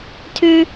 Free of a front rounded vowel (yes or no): no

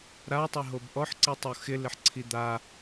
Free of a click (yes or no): no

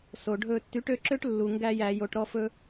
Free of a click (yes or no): no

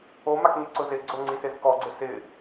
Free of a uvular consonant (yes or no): yes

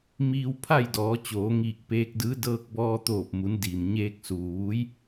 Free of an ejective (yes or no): yes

